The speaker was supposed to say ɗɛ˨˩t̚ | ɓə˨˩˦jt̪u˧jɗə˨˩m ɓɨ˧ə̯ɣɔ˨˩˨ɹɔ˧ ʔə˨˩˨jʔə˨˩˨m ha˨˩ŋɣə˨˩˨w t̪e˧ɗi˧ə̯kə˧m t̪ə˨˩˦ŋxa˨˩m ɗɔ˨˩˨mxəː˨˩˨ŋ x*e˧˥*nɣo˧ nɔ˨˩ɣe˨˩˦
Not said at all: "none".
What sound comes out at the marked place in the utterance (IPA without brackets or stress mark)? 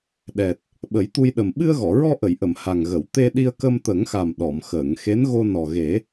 e˧˥